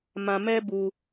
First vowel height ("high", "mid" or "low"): low